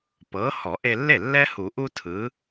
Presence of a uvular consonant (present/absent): absent